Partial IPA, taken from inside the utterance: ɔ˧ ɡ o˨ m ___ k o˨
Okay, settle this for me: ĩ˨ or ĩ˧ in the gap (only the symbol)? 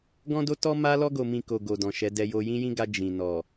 ĩ˨